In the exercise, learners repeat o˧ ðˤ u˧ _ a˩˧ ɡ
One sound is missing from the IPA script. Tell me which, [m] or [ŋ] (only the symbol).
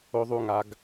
ŋ